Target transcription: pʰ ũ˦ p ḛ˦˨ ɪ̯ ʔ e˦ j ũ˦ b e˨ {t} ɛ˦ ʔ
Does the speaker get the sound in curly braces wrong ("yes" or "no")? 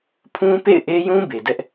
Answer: yes